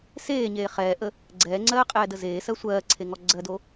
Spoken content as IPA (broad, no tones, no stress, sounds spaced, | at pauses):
s eː ɲ eː χ ɛː ʔ ə | ɡ͡ǀ ɛː ŋ͡ǀ ɜː qʼ ɛː d ə z eː s ɜ sʷ ɜː ǀʰ e ŋ ɔ ɡ͡ǀ ɜ d o